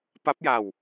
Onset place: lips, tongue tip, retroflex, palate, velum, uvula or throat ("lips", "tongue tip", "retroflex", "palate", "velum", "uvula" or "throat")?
lips